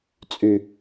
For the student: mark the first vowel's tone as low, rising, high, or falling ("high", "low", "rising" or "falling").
low